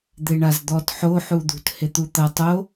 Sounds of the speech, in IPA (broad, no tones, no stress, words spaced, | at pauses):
d̪eɳazd̪ɔt ħo ħud̪ṳt het̪ut̪ɐ tˤo